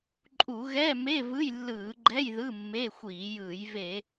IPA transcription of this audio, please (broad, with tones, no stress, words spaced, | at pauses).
ǃʼu˧˩˧ ɣɛ˧˥˧me˧˥˧ vɯ˧˥˧jlːɯː˧˩˧ɡ͡ǃɛ˧˥˧j ðɯ˧˥˧mːe˧˥˧xʷiː˧˩˧jɯː˧˩˧j ve˧˩˧